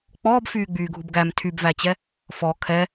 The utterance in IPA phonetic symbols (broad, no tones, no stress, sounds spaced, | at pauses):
k͡p ɔː b f yː ɡ͡b yː ɡʱ u b ɡ æ m tʰ y b v æ t͡ɕ ɛ | f ɔ kʰ ɛ